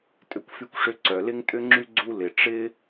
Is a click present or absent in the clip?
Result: present